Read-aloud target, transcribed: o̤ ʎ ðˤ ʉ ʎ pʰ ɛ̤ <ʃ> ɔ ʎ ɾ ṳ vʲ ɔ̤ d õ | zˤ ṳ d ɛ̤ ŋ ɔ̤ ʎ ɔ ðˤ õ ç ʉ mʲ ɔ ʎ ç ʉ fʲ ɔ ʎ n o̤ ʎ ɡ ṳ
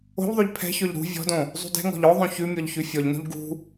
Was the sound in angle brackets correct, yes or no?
no